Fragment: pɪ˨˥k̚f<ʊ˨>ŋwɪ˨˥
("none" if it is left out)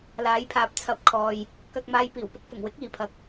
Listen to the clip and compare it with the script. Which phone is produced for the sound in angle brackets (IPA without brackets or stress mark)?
ʊ˨˩